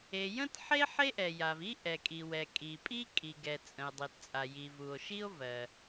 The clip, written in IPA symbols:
e˩jə̃˥tħe˥ ħe˥ʔɛ˩ja˩vi˥ ʔɛ˩kʼi˩wɛ˩ kʼi˩pʼi˥ kʼi˩ɡɛ˩ t͡sʼə̃˩e̯dˤi˩tt͡sʼa˩ ji˩vu˩o̯ʃi˥o̯ vɜ˩

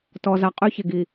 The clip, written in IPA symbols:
tɔ˨za˨ qʼy˦çe˨ɡi˨

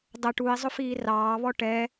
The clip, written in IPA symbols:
dˤə ʈui̯ zˤʊfiːrɑːβɔ ʈɛ

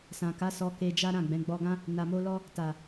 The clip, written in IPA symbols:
sã˨ka˨˦ sɔ˧ke˧ d͡ʒa˦ɾã˦˨ɡ͡bɛ̃˨˦ ɡ͡bɔ˧ɡã˦ | na˨mo˧lɔ˧ | ta˨

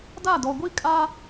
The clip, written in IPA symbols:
da˦˨dɔ˨ɡʷi˦ kʼaː˦

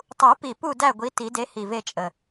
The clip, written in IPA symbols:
tˤu˨˩˦pi˨˩ pu˦˨ dæ˦˨ɡʷi˨˦ ti˨˩˦de˨˦ hi˨˩ve˦˨t͡ʃʼə˨˩

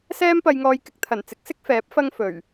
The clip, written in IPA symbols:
sɛː˥mpɐ˧jŋɔː˧jkɪ˧k̚ t̪ʰɐ˨˩nt͡sɪ˨˥k̚sɪ˥k̚ fɛː˨˥p̚ fɐ˥ŋfɵ˨˩ɥ

